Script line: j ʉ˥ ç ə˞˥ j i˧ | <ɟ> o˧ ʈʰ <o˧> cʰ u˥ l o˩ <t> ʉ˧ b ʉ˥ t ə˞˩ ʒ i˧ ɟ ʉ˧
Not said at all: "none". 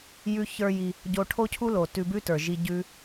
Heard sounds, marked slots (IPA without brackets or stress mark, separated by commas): ɟ, o˥, t